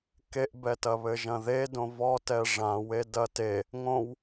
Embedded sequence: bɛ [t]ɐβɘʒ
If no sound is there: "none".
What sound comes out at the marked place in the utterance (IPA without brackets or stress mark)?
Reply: t